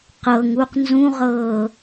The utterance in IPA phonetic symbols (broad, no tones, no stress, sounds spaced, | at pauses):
q ɤ ŋ u q n z ũ ʁ ɤː